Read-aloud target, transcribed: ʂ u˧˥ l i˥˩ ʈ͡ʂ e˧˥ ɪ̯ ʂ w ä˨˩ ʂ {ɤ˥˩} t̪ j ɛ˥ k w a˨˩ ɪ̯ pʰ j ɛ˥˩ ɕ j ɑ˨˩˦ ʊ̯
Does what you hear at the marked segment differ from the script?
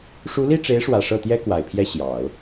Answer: no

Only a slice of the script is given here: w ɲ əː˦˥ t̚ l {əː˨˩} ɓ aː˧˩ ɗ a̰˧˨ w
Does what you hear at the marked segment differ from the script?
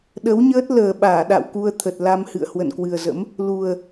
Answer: no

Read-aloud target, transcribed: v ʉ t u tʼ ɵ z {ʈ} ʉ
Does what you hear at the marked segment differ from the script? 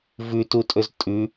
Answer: yes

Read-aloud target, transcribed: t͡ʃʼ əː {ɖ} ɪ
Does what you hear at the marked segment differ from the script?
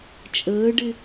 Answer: no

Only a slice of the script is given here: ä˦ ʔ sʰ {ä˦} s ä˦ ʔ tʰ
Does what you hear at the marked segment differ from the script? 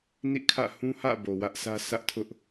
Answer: no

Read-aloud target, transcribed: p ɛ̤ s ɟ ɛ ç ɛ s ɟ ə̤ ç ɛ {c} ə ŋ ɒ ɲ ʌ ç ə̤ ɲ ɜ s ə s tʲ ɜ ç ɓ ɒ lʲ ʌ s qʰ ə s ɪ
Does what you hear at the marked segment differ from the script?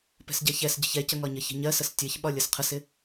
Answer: no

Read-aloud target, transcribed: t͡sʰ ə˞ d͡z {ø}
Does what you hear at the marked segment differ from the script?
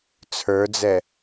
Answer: yes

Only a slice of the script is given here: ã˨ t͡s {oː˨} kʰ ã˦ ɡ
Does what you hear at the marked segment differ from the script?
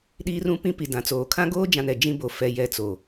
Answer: no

